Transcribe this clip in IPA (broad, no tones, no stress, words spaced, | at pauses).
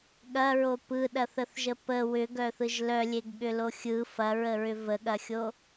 ɠɐɹo pɯɗɐθəθʒə pə wʏɡœθɯʒ lœlʲeɡɠʏlo xʲɯ fɐɹəɹʏ vəɠɐxʲo